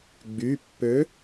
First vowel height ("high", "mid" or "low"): high